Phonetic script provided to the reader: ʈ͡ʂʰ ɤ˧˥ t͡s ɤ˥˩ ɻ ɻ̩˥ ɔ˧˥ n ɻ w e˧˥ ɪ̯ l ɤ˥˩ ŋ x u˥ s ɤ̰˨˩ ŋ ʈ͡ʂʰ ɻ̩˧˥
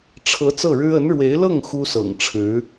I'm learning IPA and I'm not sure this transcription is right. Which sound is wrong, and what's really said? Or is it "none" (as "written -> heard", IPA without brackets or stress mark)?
ɔ˧˥ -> ə˧˥